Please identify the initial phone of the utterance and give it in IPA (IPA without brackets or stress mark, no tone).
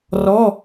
r